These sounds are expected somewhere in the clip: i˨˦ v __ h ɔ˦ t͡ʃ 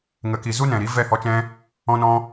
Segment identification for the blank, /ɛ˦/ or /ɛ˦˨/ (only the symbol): ɛ˦˨